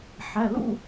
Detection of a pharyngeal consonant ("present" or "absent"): present